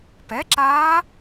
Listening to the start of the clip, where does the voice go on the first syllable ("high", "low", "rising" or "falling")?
rising